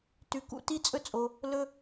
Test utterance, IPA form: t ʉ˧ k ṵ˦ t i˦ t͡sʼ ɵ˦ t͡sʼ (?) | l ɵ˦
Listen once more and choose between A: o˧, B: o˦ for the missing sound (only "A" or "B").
A